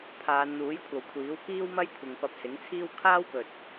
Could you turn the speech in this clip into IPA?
pʰ aː˨˧ n n̪ uː˨˥ j kʷʰ ɐ˨ w kʷʰ iː˨˥ w k iː˥ w m ɐ˥ j kʷʰ ɪ˨ ŋ p ɐ˧ p̚ s ɪ˨˥ ŋ t͡sʰ iː˥ w kʰ aː˥ w p ɵ˨ t̚

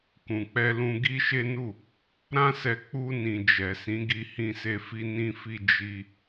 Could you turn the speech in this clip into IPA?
k ũ˨ k͡p ɛ˧ l ũ˧ ɡ i˦ ʃ e˦ n u˦˨ | ɾ ã˦ s ɛ˧ k͡p u˧ n ĩ˨ d͡ʒ ɛ˨ s ĩ˨˦ ɡ i˧ h ĩ˦ s e˦ f i˦ n ĩ˦ f i˦ d͡ʒ i˧

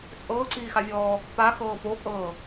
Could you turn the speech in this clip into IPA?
t͡sʼ ɤː ǀ iː x a vʲ ɔː | p a x ɤː p o kʼ ɤː

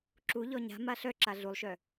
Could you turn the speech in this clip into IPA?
ǁ u ʎ ɔ ɲ a̤ m a ɬ œ ǁ a ɮ u lˠ ʃ œ

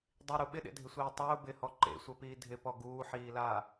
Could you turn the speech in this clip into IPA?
dˤ i ɾ u ɓ ɪ ɗ ḛ dʱ ɪ sʷ iː tˤ ʊː b ɪ h ɔ ǃ ḛ sʷ ɛ p iː dʱ ɪ p ɔ ɡ uː ħ iː l aː

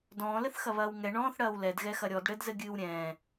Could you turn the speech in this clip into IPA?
d ɔ̃ː l ɘ θ x ɐ β ɐː w ŋ ɛ ɳ ɔ̃ː θ ɽ ɐː w l ɛ d ɣ ɛ x ɐ ɾʲ ɔ d ɽ ɘ d z ɘ ɡʲ ɨː w ɾʲ ɛ̃ː

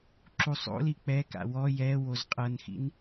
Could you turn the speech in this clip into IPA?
ǁ u sˤ o̰ l i k͡p ɛ k a̰ w ɔ j ɛ w o z qʼ ɤ n x ḭ n

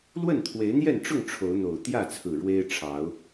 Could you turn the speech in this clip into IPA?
l w ə˥˨ n t̪ʰ w e˨˦ ɪ̯ n̪ j ɛ˥˨ n ʈ͡ʂ ʊ˥˨ ŋ ʈ͡ʂʰ o˨˦ ʊ̯ n̪ o˨˩ ʊ̯ t̪ j ä˥˨ t͡sʰ ɹ̩˨˩ ɻ w e˦ ɪ̯ ʈ͡ʂʰ ɑ˨˦ ʊ̯

